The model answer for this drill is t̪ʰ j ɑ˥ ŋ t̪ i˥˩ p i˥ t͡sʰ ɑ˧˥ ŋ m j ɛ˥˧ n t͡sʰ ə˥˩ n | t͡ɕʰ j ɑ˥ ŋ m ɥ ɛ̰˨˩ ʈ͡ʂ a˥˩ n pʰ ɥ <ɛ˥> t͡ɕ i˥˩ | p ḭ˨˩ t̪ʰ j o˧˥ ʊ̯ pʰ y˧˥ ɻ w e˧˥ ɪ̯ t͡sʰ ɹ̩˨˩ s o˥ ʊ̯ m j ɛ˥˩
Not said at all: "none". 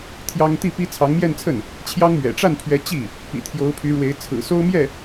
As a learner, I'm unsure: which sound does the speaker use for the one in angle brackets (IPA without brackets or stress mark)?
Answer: ɛ˧˥